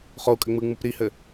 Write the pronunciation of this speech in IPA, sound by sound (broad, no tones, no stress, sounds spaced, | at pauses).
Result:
χ o u̯ kʼ ɘ ŋ͡m ɯ ŋ͡m ɯ p ɾ i h ɘ